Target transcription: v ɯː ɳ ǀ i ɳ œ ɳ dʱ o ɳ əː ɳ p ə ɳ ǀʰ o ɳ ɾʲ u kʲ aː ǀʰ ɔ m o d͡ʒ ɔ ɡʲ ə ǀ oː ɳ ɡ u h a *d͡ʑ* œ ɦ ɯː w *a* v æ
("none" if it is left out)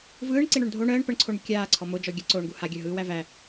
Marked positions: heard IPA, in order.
ɡʲ, æ

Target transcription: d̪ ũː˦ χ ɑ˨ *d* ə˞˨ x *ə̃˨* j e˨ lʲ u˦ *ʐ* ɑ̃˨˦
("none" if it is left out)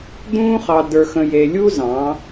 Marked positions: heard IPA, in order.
d, ə̃˨, z

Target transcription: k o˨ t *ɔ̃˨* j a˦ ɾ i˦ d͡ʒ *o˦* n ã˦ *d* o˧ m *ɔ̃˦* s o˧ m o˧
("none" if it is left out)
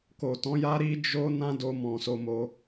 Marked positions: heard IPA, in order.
ɔ̃˨˦, o˦, d, ɔ̃˨

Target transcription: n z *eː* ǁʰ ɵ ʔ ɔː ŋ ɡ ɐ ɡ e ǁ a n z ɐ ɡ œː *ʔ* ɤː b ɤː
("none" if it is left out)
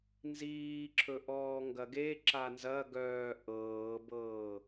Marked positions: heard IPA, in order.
iː, ʔ

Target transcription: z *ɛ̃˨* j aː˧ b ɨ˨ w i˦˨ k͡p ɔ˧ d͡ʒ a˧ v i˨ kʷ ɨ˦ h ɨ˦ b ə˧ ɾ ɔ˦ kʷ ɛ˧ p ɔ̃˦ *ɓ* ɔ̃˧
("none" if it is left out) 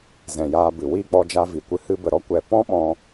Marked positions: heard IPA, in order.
ɛ̃˨, ɓ

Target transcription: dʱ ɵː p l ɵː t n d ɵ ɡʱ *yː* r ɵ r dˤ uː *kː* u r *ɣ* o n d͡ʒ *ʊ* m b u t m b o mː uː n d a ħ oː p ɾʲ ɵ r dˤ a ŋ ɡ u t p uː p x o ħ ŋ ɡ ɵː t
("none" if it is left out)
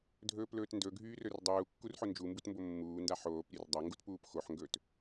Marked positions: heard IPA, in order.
yː, kː, ħ, u

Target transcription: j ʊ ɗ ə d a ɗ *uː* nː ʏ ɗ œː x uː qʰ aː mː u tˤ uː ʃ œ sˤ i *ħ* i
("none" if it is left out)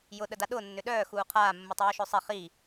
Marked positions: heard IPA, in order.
ʊː, χ

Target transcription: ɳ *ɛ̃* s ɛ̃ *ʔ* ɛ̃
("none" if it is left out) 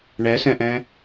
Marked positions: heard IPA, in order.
ɛ, ʔ

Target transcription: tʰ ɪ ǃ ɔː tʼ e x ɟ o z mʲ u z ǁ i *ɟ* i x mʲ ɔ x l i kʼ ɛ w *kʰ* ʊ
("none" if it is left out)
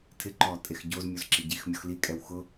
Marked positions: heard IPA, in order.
ɟ, x

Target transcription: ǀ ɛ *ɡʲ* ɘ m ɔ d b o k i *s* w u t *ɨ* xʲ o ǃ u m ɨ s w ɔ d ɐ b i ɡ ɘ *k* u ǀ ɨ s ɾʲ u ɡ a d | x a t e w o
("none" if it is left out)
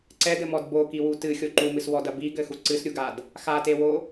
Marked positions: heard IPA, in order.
d, none, ɨ, x

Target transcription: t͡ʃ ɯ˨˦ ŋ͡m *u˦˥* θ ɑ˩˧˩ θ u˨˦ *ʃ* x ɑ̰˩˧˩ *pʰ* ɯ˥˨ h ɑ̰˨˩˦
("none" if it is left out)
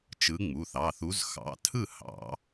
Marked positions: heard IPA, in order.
u˩˧˩, z, tʰ

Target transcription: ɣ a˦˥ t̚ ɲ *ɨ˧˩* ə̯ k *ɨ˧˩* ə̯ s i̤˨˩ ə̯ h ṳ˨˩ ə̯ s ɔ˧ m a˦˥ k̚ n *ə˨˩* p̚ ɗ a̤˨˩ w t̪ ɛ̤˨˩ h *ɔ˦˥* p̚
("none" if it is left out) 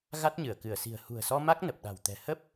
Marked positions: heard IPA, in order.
ɨ˧˩, ɨ˧˩, ə˨˩, ə˦˥

